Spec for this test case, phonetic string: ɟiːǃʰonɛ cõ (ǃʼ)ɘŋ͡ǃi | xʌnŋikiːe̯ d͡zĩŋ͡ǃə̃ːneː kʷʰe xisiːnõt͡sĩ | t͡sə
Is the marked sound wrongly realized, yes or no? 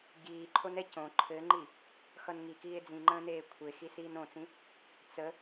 yes